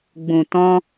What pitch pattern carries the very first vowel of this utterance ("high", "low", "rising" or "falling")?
low